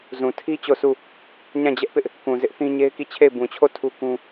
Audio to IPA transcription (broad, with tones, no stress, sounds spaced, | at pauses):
z ũ˨ tʰ i˦ t͡ɕ o˦˨ sʰ u˦˨ | ɲ ã˦˨ d͡ʑ ɛ˦ ʔ p ɪ˦ ʔ | k ũ˨ z ɪ˦ ʔ θ ĩ˦ ɲ e˦ ɪ̯ k i˦˨ t͡ɕʰ e˦˨ ɪ̯ b ũ˨ t͡ɕʰ o˦˨ tʰ u˦ k ũ˦